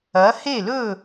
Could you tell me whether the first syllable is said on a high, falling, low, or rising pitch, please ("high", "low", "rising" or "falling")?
rising